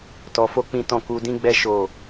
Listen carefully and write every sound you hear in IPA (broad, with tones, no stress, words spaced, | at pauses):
tɔ˧fo˦k͡pĩ˦tɔ̃˦˨ ku˧dĩ˦ɡ͡bɛ˦ ʃo˦˨